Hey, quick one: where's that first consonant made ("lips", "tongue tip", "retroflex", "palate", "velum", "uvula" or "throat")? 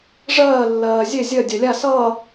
retroflex